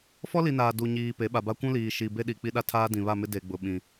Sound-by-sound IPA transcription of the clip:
f ɔ˦ l i˨ n aː˨ d u˨ ɲ iː˨ p e˨˦ ɓ a˨ b a˦ kʷ ũ˦ l iː˨ ʃ i˨ b e˦ ɗ i˨ k͡p i˦ ɗ a˦ tʰ aː˦ d ĩ˨ β a˦˨ m ɪ˦ d e˨ ɡ͡b ʊ˨ ɓ ĩ˨

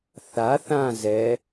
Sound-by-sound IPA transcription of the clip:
θ a θ ã z ɛ

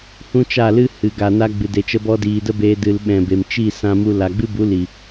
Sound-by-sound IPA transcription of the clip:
h ũ˦ t͡ʃ a˦˨ l ɨ˦ h ɨ˨ ɡ a˨ n a˧ ɡ͡b ɨ˨ d e˨ t͡ʃ ə˧ b ɔ˧ d iː˨ d ə˦ b eː˧ d ɨ˨ l ɓ ɛ̃˨ b e˨ m t͡ʃ i˦˨ s ã˧ m u˧ l a˨ ɡ͡b ɨ˦ b u˨˦ l i˨

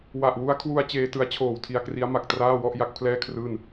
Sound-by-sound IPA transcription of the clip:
w a˨˩ ʔ w u˦˥ a̯ kʰ w u˧ a̯ t͡ɕ eː˧ t ɯ˦˥ a̯ t͡ɕʰ oː˨˩ w tʰ i˧ a̯ k r i˦˥ a̯ m a˨˩ k̚ t r aː˥˩ w ɔ˥˩ ʔ j a˥˩ k̚ pʰ l ɛː˥˩ kʰ r ɯː˥˩ n

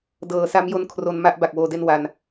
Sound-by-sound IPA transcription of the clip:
d ɤː˩˦ s a˦˥ m j o˦˥ n kʰ r o˧ n m a˦˥ ʔ b a˨˩ k̚ w oː˧ d e˥˩ n w a˧ n

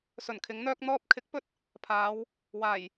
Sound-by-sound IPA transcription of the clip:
s ɵ˨˩ n kʰ ɪ˨˥ ŋ n̪ œː˥ k̚ n̪ ɔː˧ p̚ kʰ ɪ˨˥ k̚ p ɵ˥ t̚ | pʰ aː˨˧ w | w aː˨˩ j

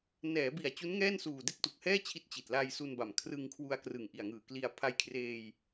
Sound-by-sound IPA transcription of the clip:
n ɛː˩˦ b i˨˩ a̯ t͡ɕ u˦˥ n ŋ ɛː˥˩ n s uː˨˩ d e˥˩ k̚ t u˨˩ k̚ h ɛː˥˩ t͡ɕʰ i˦˥ t̚ t͡ɕ i˨˩ t̚ l a˧ j s u˧ n b a˨˩ m kʰ r ɯ˧ ŋ kʰ w u˧ a̯ k r ɯ˨˩ ŋ ʔ i˨˩ a̯ ŋ ɯː˨˩ k l i˧ a̯ pʰ a˧ j kʰ r eː˧ j

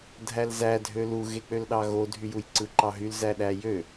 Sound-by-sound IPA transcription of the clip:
dʱ æ l z æ dʱ ø l u ɣ e k͡p ø l ɗ ɑ ɣ o dʱ y j u j ǀ ɯ ǃ ɑ ɦ y l z æ ɗ æ j ø

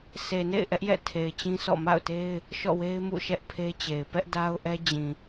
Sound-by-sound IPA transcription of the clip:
sʰ e˨ n ḛ˦˨ ɪ̯ ʔ ɛ˦ ʔ j ɛ̰˦˨ tʰ e˨ ɪ̯ t͡ɕ ĩ˦ sʰ ɔ̰˦˨ m a̰˦˨ ʊ̯ t e˦ ɪ̯ | ʃ ɔ̰˦˨ w e˦ ɪ̯ m ṵ˦˨ ʃ ɛ˦ ʔ pʰ e˦ t͡ɕ e˨ ɪ̯ p ɛ˦ ʔ d a˦ ʊ̯ ʔ ɛ˦ d͡ʑ ĩ˨

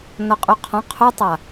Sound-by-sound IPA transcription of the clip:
n ɔ qʼ u qʰ ɔ̃ qʰ u tˤ a

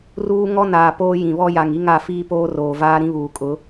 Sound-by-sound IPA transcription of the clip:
r uː˦ ŋ ɔ˦ n aː˨ p oː˦ j ĩ˨ β ɔ˦ j a˨ ŋ i˦ ŋ a˦˨ f iː˦ p oː˦ r oː˨ v aː˦ ɾ ĩ˦ β uː˨ kʼ ʊ˨˦

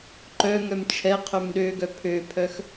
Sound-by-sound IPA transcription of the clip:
ǃ œ ŋ œ m t͡ʃʰ ɛ qʰ œ m ɗ ø ɡ œ pʰ ø pʰ œ x

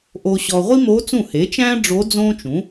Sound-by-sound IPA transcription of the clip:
ʔ o˨ ɕ ɔ˨ ʁʷ i˥ m oː˧˥ t͡s ũ˥˩ h e˩˥ t͡ʃ æ̃˥ ɖ͡ʐ oː˧˥ d͡z õː˥ t͡ʃ ũ˩˥

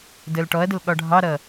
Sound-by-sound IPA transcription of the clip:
d əː l ʈ ɔ ɐ̯ d ə l ɠ ɒ ɖʱ ɑ ɾ ʌ

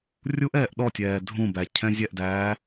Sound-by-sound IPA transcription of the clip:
rʲ u ʔ ɛː ʔ ɗ ɔ tʲ ɛː dʱ ũ b æ cʰ ɛ̃ zʲ ɛ ʔ d æː

